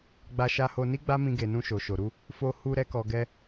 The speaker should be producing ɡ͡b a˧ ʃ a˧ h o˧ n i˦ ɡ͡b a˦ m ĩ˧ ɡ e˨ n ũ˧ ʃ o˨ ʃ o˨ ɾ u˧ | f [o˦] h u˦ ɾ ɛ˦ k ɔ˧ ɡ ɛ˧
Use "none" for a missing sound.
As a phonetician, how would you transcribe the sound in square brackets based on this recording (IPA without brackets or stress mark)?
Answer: o˦